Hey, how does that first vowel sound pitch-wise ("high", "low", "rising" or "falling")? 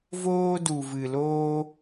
high